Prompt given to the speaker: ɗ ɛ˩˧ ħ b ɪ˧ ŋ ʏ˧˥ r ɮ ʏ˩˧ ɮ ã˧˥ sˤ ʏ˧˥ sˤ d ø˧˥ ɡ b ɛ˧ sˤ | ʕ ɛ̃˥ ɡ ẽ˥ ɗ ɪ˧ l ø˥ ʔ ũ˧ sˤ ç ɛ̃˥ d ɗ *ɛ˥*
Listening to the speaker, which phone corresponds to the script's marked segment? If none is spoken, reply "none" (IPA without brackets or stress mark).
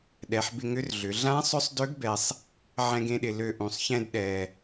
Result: ɛ˧